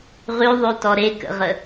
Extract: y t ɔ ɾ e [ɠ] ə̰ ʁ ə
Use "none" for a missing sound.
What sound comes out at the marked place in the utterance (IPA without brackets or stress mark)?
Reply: k